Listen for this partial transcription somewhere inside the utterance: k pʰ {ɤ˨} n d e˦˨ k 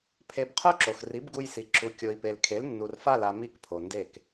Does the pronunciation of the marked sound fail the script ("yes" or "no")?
yes